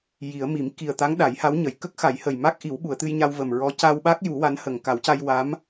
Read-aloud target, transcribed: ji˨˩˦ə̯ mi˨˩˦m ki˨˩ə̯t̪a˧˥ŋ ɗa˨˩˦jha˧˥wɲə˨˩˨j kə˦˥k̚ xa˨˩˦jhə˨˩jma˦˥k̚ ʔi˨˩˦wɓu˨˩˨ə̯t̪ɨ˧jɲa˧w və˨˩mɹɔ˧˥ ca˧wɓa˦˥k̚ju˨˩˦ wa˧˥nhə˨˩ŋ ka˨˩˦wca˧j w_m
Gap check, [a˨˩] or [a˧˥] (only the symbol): a˧˥